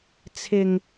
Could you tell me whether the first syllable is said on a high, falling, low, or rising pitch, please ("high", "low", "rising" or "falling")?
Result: low